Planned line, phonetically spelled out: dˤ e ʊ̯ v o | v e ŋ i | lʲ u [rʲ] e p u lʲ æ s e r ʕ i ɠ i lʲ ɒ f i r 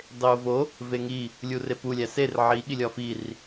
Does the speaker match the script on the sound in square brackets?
no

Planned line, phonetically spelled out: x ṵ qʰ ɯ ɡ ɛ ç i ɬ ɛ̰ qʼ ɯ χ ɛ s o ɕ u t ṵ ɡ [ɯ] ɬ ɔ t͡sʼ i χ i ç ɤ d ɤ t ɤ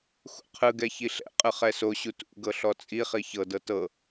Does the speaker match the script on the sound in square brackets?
no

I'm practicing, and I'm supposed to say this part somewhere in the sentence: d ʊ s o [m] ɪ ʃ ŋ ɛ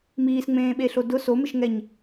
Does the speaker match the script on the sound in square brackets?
yes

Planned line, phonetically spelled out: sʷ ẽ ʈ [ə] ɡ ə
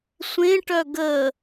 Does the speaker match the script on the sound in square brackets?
no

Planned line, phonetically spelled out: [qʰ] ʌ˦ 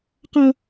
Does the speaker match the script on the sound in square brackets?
no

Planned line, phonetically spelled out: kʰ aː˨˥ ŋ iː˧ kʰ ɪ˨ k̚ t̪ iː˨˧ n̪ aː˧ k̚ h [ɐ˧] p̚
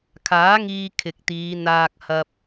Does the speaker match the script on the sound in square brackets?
yes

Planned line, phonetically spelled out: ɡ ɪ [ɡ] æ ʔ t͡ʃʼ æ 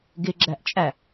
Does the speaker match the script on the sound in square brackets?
no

